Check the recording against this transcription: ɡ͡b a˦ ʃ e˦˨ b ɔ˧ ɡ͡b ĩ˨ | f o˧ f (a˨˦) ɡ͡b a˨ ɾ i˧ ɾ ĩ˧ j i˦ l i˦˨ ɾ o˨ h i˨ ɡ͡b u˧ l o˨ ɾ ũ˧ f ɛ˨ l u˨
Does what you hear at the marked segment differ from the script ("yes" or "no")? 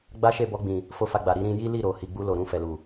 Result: yes